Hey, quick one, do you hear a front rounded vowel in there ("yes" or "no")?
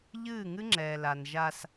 no